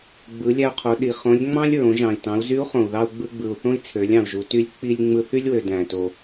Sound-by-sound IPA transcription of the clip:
ɡ͡bɯ˩˧lʲæ˧u̯qʰo˩˧ ɗi˩ χõ˧˥lʲ ŋ͡mɑ̃˥lʲɹõ˩˧ ʒɑ̃˩i̯ tɑ̃˩˧u̯zy˧˥u̯χõ˩u̯ðɑ˧u̯ ɡ͡bɯ˧ɡ͡bɯ˩u̯θõ˥i̯ t͡sʰø˩˧lʲɑ̃˩u̯ʒu˩˧ty˧˥lʲ k͡pi˧lʲ ŋ͡mɯ˧θy˥lʲwø˩ dæ̃˩to˩

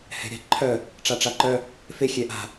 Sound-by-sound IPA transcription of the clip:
hɛ̤ɾʲɑ̤ǃʰœ | ʈ͡ʂaʈ͡ʂaǃœ | fe xʲɛʔa̤

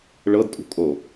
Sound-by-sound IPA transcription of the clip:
ɭɤdtʼṳ kʼo

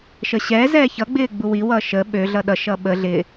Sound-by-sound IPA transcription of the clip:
ʃəɕɛːzɛː çʌɡ͡bɪː ɡ͡buwiwʌː ʃə ɓø ɮʌɗʌʃʌː ɓə ɮɪ

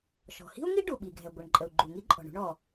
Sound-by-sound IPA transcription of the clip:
ʃɔ̤˩hi̤˥u̯ŋi˥ ɖu˩ ɓi˩ɡʱɛ˩ ɡʷə˩ɳǃʼə˩u̯ ɡ͡ǃu˩ŋi˥ǃʼɔ̤˩ɳṳ˥ɳ ɔ˩

